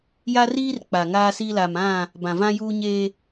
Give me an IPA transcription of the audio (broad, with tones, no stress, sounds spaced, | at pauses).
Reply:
j a˦ r iː˦ r k͡p a˨ ŋ aː˦ s i˦ l a˨ m ã˦˨ | b ã˨ v ã˦ j uː˦ ɲ eː˦